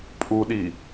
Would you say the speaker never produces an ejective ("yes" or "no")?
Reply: no